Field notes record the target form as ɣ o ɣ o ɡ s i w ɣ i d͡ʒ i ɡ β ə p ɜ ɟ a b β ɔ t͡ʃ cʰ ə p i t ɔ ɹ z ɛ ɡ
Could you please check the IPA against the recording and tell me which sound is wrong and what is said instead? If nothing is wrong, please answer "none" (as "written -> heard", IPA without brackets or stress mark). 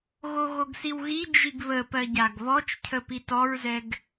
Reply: b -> ɡ